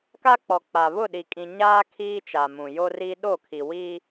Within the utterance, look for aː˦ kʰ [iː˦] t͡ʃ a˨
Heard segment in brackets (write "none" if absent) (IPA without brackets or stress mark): iː˦